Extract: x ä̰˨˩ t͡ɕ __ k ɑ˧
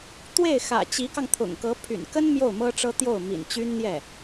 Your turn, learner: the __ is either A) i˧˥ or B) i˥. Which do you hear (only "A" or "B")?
A